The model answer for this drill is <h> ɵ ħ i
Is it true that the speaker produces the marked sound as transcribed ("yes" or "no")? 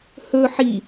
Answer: yes